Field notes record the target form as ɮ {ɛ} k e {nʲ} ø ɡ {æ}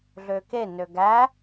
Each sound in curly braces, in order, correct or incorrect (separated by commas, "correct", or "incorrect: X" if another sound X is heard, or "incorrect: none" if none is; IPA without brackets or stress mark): incorrect: ø, incorrect: n, correct